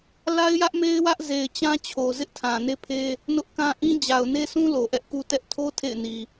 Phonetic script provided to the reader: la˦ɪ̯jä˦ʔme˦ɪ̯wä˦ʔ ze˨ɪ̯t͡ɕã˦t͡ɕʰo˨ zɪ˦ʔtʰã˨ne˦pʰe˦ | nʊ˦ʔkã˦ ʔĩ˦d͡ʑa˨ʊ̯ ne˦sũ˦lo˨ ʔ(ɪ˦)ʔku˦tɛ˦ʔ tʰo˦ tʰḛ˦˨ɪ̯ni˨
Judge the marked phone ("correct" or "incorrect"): incorrect